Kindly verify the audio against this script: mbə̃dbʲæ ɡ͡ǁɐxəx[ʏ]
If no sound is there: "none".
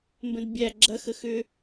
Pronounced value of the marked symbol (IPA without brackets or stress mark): ʏ